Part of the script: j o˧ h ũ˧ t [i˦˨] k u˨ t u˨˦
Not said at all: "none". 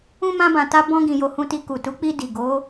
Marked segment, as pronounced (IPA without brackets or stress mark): i˧